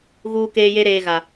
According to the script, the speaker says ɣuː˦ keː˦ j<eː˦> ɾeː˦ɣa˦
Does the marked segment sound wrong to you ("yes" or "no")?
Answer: yes